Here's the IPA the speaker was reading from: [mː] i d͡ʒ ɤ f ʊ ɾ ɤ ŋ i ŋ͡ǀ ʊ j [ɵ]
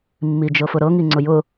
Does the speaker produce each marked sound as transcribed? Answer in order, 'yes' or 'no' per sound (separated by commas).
yes, no